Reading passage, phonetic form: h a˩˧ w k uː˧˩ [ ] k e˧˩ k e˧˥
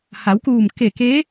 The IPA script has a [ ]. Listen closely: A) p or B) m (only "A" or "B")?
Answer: B